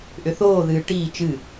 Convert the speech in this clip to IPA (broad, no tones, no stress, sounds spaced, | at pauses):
ʔ ʏ θ oː ð ɨː ʈ iː t͡ʃ ɨ